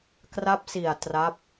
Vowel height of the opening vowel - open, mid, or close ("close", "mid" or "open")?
open